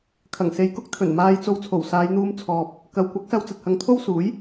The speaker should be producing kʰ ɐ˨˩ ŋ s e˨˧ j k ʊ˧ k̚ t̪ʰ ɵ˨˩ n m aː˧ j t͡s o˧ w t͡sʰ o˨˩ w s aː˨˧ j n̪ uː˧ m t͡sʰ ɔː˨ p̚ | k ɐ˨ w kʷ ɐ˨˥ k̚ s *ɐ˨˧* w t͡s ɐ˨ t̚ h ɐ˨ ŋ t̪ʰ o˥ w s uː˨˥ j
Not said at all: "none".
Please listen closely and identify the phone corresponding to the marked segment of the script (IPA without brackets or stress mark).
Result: ɐ˧